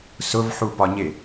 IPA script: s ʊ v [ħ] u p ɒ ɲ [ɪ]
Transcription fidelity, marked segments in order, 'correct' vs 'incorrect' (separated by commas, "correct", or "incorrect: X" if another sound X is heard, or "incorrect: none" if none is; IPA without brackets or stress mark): correct, correct